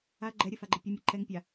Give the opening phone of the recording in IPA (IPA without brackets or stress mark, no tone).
a